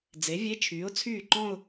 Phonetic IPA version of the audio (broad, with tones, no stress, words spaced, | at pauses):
d͡ze˩˥vʲe˧˥˧t͡ʃʰyː˩˥ʊ̯t͡sʰyː˥˩ ǃɔ̃˥˧ʊ̯